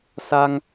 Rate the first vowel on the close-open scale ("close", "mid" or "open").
open